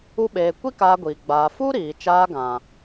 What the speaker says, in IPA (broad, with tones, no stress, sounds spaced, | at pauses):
u˦ ɓ eː˧ kʷ i˦ k aː˧ ɡʷ iː˨ ɡ͡b aː˨ f u˦ ɾ iː˨ t͡ʃ aː˧ ɡ ã˨